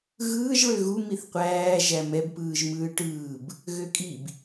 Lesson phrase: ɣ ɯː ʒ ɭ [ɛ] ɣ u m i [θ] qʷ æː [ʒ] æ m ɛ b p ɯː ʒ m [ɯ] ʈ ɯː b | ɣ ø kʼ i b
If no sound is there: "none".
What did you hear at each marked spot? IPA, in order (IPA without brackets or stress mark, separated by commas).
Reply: ø, θ, ʒ, ɯː